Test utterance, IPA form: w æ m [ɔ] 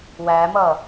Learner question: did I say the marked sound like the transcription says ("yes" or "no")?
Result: no